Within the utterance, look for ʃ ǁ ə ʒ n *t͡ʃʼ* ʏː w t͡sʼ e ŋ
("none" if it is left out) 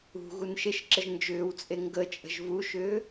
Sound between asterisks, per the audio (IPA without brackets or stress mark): d͡ʒ